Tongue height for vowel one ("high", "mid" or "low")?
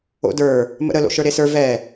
mid